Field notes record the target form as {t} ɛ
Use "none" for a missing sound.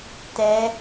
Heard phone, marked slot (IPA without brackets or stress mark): t